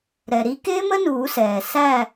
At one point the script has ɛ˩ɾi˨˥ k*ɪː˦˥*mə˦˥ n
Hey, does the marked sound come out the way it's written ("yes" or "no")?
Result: yes